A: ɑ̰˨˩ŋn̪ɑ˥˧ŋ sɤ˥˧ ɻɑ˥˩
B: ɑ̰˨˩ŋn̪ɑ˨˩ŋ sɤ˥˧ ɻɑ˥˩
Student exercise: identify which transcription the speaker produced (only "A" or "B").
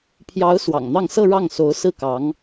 A